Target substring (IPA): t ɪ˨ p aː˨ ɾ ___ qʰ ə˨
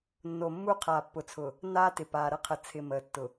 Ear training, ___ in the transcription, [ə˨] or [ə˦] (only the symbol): ə˦